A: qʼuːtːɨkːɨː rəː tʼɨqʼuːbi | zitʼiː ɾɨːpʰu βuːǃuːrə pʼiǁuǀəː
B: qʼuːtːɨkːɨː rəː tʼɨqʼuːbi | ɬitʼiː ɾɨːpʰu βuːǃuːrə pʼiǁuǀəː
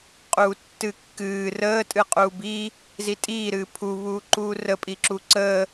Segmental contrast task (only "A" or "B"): A